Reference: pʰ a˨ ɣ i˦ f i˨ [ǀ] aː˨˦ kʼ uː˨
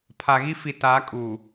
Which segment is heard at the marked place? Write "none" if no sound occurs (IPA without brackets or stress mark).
t